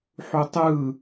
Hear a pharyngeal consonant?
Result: yes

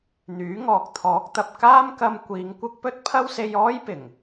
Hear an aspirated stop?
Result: yes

